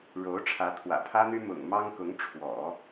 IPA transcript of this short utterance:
ɻ o˧˥ ʊ̯ ʈ͡ʂʰ ä˧˥ t̪ʰ w ä̰˨˩ pʰ ä˥ n̪ y˥ m ʊ̰˨˩ ŋ m ɑ˥ ŋ k ʊ˧˥ ŋ ʈ͡ʂʰ w ɔ̰˨˩˦

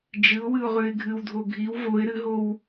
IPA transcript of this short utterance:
d͡ʒ ɨ ʊ̯ w ɨ ʊ̯ ʁ ʉ ɪ̯ ɡʱ ɨ w dʱ o ɡʱ i w v o ɪ̯ ɾ ɨ ɦ o w

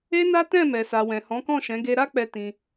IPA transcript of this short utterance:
e˦ n a˦ t ɛ̃˦˨ m ɛ˨ s a˨ w ɛ̃˨ h ɔ̃˨˦ k ɔ̃˦˨ ʃ ɛ̃˨˦ ɡ e˧ ɾ a˦ k͡p ɛ˧ t ĩ˧

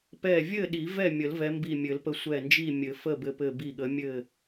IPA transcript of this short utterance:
p ɛ˧˩ vʲ ɘ˥˨ ɗ i˨˩˦ v ɛ˥˨ mʲ ə˨˩˦ l v ɛ˨˦ m b i˧˩ mʲ ɘ˨˩˦ l p ə˧˩ sʷ ɛ˧˩ n d͡ʒ i˥˨ mʲ ɘ˨˩˦ f ə˥˨ b ɘ˧˩ p ɘ˧˩ b i˧˩ ɠ ə˨˦ mʲ ɘ˥˨

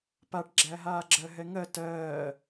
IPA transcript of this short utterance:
p a ʈ ɡ͡ǁ æ ɦ aː ɡ͡ǁ ɜ ɦ ɛ ŋ ɜ t ɜː

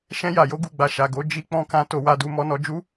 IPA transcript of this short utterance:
ʃ ɛ̃˧ j a˨ j o˨˦ ɡ u˦˨ ɡ͡b a˧ ʃ a˨ ɡ o˨˦ d͡ʒ i˦ k͡p ɔ̃˧ k ã˧ t o˧ w a˧ d u˧ m ɔ˦ n ɔ˦ d͡ʒ u˦

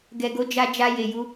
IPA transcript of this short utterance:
ɡ ɛ˨ ɡ o˧ d͡ʒ a˧ d͡ʒ a˧ j e˨ j u˧

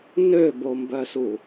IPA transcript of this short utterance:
n ø b o m b œ s u

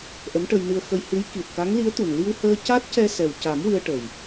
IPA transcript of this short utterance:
ʔ ə˧˥ m ʈ ə˧ j n ɨ˧ ə̯ x ə˧ j h ɨ˧˥ j k i˨˩ t̚ k a˧˥ ŋ l i˧˥ ə̯ t̪ u˨˩ n l i˧ w h əː˧ c a˦˥ t̚ c ɛ˧ s ɛ˨˩ w c a˨˩˦ m w ɨ˧ ə̯ ʈ ə˨˩ j

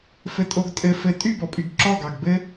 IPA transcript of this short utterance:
f ɘ tʼ o ɡ tʼ ɘ f ɘ tʼ y b ɔ pʼ y ɡ ǁ ɔ ɡ ɑ ɡ b ɘ

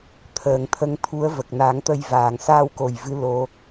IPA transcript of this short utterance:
t̪ʰ əː˨˩˨ ŋ t̪ʰ ə˧ ŋ t̪ʰ u˧˥ ə̯ v ə˨˩ k̚ n aː˨˩˦ ŋ t̪ ə˧ j v aː˨˩ ŋ s a˧ w k o˨˩ j v ɨ˧˥ l o˧

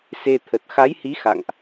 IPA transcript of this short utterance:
s e˧ t̪ʰ ə˨˩ t̚ x a˨˦ j h i˨˦ x a̰˧˨ ŋ ʔ

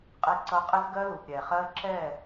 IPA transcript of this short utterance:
qʼ i˦ ǀ ʌ˦ qʼ ɪ˦ z ɡ ɜ˦ l u˨ p ɾʲ ɛ˨ χ ɜ˦ ǁ ɛ˦˨

